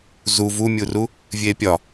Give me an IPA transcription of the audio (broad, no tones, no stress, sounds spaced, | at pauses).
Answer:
z u v u mʲ u r u | vʲ eː pʲ ɒ